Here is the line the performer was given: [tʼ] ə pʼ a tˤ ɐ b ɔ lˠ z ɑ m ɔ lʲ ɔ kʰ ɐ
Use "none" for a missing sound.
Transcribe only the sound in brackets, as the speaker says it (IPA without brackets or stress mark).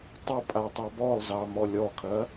tˤ